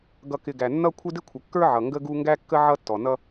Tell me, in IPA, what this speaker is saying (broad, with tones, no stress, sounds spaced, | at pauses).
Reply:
ɡ ʌ˨ k ɪ˨ ɡ æ˨ nː ʌ˦ kʷʰ ɪ˦ d ɪ˦ kʷʰ ə˨ kː ə˞˦ ʕ ʌ˨ ŋ ɡ ə˦ ɡ u˦ ŋ ɡ æ˦ kː ə˦ ʕ ʌ˦ tː ɔ˨ n ʌ˦